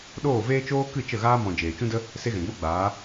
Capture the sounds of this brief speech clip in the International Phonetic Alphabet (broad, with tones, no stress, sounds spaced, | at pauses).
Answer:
ɗ oː˦˨ v eː˦ t͡ʃ oː˦ k ɨ˦˨ t͡ʃ ə˦˨ ɣ aː˦ m ɔ̃˨ d͡ʒ eː˨ t͡ʃ ũ˦ d ə˦ | s e˦ ɣ ɛ̃˨ ɡ͡b o˦ ɡ͡b aː˨˦